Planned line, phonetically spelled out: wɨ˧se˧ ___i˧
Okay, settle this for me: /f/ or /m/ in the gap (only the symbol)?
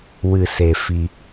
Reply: f